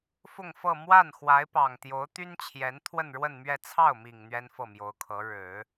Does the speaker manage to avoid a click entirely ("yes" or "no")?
yes